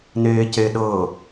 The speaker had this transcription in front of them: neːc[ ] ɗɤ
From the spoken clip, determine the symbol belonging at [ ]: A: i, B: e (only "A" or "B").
B